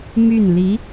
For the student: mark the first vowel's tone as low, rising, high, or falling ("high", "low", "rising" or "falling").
falling